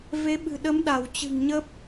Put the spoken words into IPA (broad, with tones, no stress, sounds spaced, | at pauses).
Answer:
v e˨˦ ɓ ɨ̤˨˩ ɗ ə˨˦ m ɗ a˧˩ w t͡ɕ ɨ̤˨˩ ŋ ɲ ə˦˥ p̚